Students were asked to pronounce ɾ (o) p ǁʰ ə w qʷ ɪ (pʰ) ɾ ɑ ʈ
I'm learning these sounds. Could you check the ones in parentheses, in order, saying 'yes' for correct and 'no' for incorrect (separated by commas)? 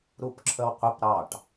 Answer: no, no